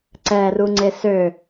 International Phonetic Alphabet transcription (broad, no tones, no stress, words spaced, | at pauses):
ǀɛruŋ͡ǀe sø